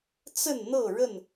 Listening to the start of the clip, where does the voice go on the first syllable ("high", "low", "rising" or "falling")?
falling